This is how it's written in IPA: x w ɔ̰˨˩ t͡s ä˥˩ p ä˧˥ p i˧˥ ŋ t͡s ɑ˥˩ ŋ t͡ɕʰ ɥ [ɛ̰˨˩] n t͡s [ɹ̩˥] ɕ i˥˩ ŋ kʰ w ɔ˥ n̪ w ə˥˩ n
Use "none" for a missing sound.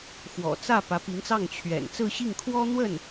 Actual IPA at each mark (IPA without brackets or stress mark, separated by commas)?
ɛ̰˨˩, ɹ̩˥˧